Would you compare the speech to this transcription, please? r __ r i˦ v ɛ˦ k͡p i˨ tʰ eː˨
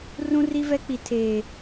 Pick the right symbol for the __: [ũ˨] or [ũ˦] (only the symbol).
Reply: ũ˦